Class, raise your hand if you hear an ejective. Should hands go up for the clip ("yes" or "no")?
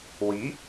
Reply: no